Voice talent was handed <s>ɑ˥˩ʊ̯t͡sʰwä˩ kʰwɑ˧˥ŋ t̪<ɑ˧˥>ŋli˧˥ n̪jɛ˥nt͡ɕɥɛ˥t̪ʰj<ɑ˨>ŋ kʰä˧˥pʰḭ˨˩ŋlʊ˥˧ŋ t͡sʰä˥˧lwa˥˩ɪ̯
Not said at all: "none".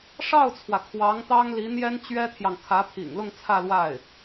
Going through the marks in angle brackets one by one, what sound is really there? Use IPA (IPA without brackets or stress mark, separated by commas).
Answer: ʂ, ɑ˥, ɑ˨